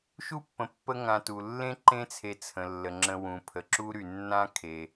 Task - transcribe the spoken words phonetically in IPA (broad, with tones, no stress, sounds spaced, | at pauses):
ʃ u˥ pː ə̃˨ pː ə˦ ŋ ã˨ t u˩ lː ẽ˥ ǃ ẽ˦ t͡sʰ e˨ t͡sʰ ə̃˩ lː ə˩ ŋ͡ǁ ə̃˨ w ũ˩ pʰ ə˩ ǁ u˦ ɾ y˩ nː ã˥ kʰ e˩